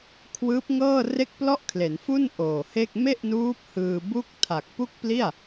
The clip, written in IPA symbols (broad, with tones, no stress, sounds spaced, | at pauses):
kʰ w ɯː˦˥ p̚ ŋ ɤː˥˩ r e˥˩ k̚ p l ɔ˥˩ ʔ kʰ l e˩˦ n f u˥˩ n ʔ oː˨˩ h e˥˩ k̚ m e˥˩ ʔ n uː˦˥ p̚ h ɯː˧ b u˥˩ k̚ tʰ a˨˩ k̚ p u˥˩ k̚ p l i˥˩ a̯